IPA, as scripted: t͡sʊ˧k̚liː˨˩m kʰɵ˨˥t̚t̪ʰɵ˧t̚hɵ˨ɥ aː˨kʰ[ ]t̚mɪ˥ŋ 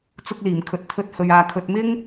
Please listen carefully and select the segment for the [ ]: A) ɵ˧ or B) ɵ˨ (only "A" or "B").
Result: B